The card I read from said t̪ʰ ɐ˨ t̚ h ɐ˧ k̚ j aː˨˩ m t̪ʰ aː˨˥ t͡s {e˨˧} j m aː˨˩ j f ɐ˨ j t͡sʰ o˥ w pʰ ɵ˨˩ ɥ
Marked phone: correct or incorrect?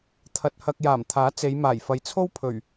correct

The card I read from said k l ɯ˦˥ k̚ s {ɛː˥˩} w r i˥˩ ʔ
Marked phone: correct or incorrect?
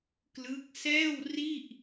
correct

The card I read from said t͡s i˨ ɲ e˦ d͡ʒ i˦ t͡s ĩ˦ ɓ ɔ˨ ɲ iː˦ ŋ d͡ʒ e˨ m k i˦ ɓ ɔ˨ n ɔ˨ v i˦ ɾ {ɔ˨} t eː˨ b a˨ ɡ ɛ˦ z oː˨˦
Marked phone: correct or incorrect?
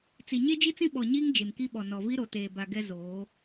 incorrect: o˨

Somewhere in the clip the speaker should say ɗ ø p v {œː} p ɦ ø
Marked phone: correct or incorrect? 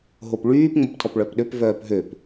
correct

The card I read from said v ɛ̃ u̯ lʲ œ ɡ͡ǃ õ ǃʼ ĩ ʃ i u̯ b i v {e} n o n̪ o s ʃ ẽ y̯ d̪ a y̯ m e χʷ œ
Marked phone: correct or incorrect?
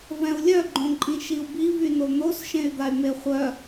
incorrect: y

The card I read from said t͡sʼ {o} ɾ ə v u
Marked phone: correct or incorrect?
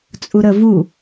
incorrect: u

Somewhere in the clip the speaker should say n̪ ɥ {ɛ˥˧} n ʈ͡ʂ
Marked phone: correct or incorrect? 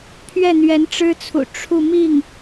incorrect: ɛ˧˥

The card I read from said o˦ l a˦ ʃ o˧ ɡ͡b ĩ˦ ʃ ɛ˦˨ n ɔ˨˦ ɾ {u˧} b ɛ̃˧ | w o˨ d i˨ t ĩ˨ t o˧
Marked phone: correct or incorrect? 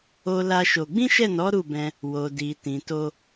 incorrect: u˦˨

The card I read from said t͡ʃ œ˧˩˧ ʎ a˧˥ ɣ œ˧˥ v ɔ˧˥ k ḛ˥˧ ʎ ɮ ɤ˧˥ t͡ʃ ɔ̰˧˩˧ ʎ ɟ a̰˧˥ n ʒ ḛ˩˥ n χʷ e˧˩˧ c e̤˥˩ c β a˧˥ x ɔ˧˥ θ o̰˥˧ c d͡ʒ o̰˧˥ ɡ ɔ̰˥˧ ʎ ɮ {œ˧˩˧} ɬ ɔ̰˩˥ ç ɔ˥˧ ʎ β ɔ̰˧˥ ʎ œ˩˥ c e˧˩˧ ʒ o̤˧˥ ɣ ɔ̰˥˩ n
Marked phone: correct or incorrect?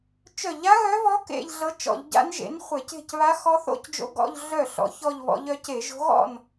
incorrect: œ˥˩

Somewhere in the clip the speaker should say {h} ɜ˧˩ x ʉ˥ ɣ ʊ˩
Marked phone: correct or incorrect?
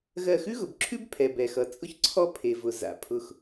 incorrect: ɣ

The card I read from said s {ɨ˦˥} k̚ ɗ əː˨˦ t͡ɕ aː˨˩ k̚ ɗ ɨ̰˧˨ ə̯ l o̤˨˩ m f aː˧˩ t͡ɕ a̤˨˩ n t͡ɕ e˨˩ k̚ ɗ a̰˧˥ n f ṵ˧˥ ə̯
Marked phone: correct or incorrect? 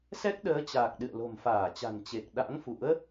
incorrect: ɛ˦˥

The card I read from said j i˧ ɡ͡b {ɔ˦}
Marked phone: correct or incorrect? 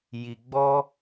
correct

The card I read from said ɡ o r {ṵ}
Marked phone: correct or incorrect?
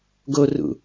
correct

